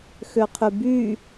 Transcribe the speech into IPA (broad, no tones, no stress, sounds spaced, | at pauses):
x ø qʰ y b y